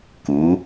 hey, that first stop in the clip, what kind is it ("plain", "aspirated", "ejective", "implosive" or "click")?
plain